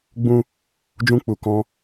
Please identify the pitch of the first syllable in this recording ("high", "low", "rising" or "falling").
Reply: high